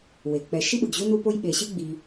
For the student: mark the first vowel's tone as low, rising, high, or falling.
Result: low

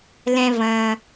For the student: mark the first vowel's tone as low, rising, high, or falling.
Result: low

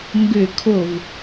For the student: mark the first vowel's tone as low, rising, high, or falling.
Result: falling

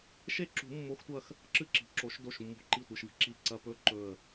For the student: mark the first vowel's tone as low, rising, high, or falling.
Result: falling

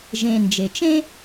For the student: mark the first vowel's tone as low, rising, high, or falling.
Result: low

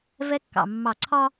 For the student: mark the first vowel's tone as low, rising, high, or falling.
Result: high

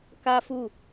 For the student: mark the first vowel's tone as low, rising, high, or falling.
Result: high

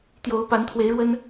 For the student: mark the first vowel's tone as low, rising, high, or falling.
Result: rising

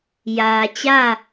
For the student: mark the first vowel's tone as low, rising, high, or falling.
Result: low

